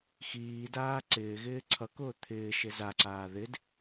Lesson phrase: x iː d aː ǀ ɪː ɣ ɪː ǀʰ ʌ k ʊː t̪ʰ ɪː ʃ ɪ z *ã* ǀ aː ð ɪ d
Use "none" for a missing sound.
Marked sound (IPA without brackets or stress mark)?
a